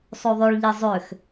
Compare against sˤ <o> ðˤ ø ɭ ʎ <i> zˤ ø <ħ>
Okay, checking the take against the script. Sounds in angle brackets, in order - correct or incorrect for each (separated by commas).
correct, correct, incorrect